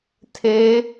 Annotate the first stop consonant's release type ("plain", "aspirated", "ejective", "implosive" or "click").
aspirated